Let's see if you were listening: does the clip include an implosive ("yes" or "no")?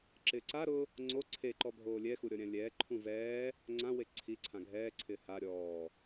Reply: no